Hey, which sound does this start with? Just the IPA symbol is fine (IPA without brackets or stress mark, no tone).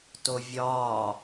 t